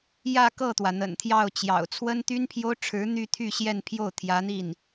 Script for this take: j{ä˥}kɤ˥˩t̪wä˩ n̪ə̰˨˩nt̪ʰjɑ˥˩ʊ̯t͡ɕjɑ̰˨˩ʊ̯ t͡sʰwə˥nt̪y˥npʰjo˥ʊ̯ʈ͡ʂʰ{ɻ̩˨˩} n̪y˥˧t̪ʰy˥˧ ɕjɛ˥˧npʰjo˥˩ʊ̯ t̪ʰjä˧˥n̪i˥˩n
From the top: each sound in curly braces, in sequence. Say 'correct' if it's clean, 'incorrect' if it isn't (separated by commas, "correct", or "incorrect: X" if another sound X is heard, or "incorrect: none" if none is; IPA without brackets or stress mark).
incorrect: ä˥˧, incorrect: ɻ̩˧˥